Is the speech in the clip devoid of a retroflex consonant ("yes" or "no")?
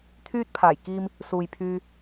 yes